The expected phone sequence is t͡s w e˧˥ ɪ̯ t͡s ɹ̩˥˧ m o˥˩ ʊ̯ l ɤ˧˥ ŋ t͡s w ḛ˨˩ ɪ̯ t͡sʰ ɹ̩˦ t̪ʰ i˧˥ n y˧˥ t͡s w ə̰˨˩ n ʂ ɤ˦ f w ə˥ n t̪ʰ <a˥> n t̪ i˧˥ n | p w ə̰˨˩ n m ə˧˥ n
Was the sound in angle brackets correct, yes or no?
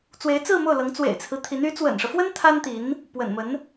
yes